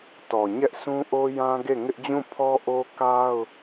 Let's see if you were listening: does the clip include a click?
no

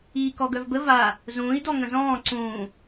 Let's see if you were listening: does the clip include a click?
yes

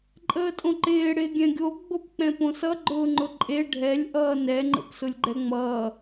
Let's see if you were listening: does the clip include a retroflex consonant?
yes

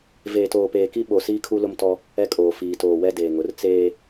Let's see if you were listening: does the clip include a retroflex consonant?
no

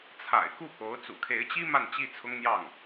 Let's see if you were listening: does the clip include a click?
no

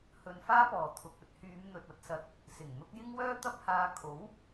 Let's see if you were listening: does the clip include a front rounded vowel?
yes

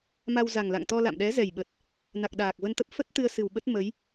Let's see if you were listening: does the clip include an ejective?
no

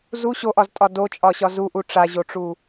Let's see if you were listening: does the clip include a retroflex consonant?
yes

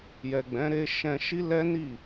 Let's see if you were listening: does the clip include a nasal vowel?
yes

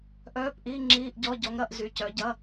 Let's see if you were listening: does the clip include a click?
yes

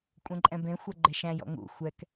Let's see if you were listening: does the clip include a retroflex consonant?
no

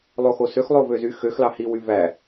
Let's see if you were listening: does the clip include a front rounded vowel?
yes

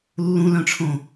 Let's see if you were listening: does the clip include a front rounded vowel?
yes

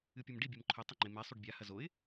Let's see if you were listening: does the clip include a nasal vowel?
no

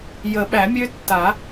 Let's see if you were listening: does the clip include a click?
no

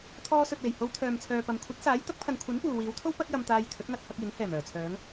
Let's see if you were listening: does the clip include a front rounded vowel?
yes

